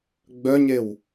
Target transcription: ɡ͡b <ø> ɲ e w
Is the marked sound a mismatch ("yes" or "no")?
yes